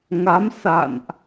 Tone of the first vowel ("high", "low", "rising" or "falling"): rising